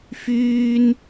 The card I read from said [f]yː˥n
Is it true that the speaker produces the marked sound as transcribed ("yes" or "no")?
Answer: yes